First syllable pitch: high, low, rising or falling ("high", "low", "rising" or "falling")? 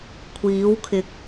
rising